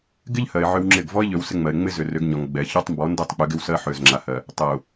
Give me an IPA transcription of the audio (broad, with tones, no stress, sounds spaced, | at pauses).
ɡ ɪ˦ ʎ h ɜ˨ ɪ̯ ʕ ʏ˦ w ŋ͡ǁ ɪ˦˨ ɡ v ɔ˦ ɪ̯ ʎ ø˨ w s ɪ˦ ŋ͡m ɜ˨ ɪ̯ ŋ͡m ɪ˦ z ʏ˨ r ʏ˨˦ ɡ ɲ ɔ˨ ŋ ɡ͡b ɛ˨ ç ɔ˦ tˤ m b ɔ˨˦ n d ɜ˦ tˤ k͡p ʏ˨˦ ɡ ɪ˦ w s ɜ˦ ħ ø˨ z ŋ͡ǁ a˨ h ɜ˨ | tˤ ɜ˨ ʊ̯